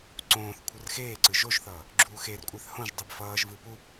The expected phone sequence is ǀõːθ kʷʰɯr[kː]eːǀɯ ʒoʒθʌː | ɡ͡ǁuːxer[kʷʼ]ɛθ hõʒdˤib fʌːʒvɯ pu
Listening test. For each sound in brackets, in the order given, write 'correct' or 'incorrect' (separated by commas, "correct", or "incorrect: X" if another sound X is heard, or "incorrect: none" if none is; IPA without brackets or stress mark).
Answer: incorrect: x, correct